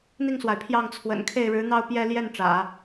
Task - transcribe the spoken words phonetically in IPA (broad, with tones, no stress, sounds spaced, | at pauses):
n̪ i˥˩ ŋ s w a˩ ɪ̯ pʰ j ɑ˥˩ ŋ t͡sʰ w ə̰˨˩ n kʰ e˥˩ ɪ̯ ɻ ɻ̩˧˥ n̪ ɑ˥˧ ʊ̯ p j ɛ˥˧ l j ɛ˥˩ n ʈ͡ʂ ä̰˨˩˦